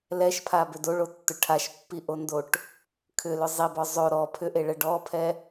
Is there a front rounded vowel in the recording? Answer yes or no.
yes